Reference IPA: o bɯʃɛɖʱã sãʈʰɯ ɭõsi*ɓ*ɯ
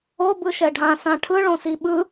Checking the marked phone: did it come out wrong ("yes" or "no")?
no